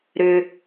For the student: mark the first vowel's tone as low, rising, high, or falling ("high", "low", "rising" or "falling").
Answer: low